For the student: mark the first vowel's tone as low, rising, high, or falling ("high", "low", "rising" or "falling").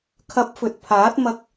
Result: rising